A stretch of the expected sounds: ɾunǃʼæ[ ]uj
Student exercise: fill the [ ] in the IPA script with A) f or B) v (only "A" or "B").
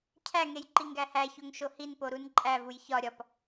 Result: B